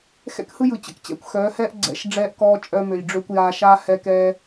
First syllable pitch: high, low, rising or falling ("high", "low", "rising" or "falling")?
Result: high